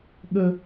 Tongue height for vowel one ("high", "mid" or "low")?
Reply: mid